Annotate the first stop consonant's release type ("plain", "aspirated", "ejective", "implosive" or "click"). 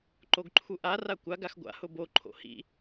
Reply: click